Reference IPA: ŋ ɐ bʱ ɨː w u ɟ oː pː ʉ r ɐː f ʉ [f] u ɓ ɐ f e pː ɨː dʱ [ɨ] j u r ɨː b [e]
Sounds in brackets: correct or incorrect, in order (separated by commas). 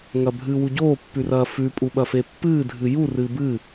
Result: incorrect, correct, incorrect